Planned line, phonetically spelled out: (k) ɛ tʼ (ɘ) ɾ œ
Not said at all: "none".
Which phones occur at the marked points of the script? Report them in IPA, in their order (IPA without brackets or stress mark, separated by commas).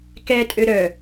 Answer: k, ø